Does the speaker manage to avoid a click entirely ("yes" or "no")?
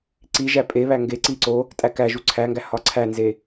no